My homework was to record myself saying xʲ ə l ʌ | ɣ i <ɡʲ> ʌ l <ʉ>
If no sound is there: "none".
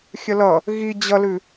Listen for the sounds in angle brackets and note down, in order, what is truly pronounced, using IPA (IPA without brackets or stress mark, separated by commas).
d͡ʑ, ʉ